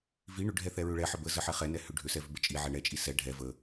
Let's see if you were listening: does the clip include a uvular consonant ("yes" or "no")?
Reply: yes